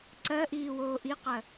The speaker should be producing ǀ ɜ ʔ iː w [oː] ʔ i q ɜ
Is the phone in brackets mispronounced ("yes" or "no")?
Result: no